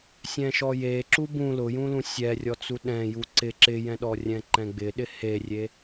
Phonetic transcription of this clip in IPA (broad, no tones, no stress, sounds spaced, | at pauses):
sʲ ɛ̃ ʃ ɔ j e ǁ u b ũ l ʊ j ũ l ũ sʲ ɛ rʲ ɔ t͡s u ɗ ɛ̃ j u ǀ ɪ ǁ ɪ j ɛ̃ ɗ ɔ rʲ ɛ̃ ǃ ɛ̃ ɡ͡b ɪ ɗ ɪ h e rʲ e